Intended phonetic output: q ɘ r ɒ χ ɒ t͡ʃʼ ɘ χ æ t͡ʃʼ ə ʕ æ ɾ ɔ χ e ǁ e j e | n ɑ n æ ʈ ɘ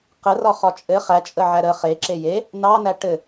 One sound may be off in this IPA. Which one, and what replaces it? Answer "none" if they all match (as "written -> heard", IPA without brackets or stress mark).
ɔ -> ə